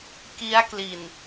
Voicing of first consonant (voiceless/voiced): voiceless